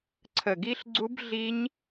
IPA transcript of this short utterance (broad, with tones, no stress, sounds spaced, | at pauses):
ǀʰ ə˨˩ ɡ i˦˥ ɬ ɡ͡ǀ u˦˥ b ɮ i˦˥ ɲ